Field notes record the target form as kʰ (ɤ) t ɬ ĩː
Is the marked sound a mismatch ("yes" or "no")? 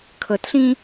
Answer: no